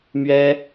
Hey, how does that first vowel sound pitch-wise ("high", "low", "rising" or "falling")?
high